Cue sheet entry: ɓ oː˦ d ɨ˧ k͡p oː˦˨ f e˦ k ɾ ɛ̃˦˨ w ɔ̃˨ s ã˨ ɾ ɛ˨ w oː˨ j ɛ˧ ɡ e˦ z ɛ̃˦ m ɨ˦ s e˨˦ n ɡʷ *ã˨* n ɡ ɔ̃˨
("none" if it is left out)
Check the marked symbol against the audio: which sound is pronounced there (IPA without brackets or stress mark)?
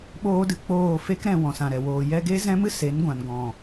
ã˨